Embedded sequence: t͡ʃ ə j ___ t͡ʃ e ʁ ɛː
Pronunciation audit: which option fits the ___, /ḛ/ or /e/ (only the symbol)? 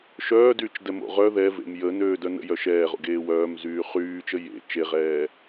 ḛ